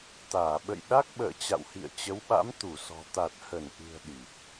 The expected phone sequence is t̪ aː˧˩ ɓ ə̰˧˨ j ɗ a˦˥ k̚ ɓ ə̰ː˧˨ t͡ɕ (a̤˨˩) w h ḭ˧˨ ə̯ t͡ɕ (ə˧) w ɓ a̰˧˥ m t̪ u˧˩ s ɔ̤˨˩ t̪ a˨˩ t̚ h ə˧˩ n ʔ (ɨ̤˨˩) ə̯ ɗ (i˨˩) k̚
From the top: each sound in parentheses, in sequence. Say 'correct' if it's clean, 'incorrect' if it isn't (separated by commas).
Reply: incorrect, incorrect, correct, correct